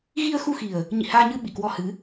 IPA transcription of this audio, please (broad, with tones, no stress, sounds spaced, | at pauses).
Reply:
ɣ i˧ ə̯ x u˧ x i˨˩ ə̯ | ɲ ḭ˧˨ h aː˧ ɲ ɨ˧ ɓ ḭ˧˨ k w ɔ˧ h ɨ˨˦